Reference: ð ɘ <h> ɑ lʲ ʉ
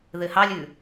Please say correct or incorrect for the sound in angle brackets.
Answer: correct